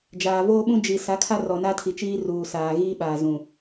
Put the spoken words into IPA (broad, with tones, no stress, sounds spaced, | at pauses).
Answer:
d͡ʒ aː˨ v oː˦ ɓ ũ˦ d͡ʒ i˨ s a˨˦ kʰ a˦ r ɔ˨ n a˦ tʰ i˨ t͡ʃ iː˦ r uː˨ s aː˨ ɣ iː˦ ɓ aː˨ z ũ˨